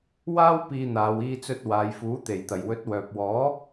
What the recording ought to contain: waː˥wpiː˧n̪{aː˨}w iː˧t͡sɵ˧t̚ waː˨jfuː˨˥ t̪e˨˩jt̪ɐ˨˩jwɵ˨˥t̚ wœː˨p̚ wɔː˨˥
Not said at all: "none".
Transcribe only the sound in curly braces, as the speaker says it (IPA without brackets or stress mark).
aː˨